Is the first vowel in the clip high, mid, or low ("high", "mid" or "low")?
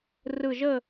high